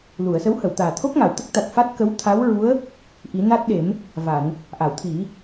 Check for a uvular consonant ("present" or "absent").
absent